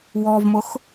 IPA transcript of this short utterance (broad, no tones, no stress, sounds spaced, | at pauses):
w ɔ v m ʊ x